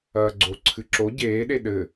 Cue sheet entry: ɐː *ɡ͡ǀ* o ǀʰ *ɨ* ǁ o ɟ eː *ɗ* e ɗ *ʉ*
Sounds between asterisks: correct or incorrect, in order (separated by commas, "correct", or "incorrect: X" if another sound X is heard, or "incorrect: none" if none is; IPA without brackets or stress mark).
correct, correct, correct, incorrect: ɘ